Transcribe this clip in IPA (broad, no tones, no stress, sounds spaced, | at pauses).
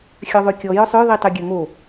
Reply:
xʲ œ ðˤ y kʲ ɔ j œ sˤ ø ð i tˤ y ɡʲ ø ŋ o